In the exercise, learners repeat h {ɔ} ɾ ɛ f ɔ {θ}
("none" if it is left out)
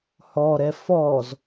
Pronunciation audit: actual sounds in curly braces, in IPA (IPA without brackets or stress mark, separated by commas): ɔ, z